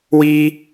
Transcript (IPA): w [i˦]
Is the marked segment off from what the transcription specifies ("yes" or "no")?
no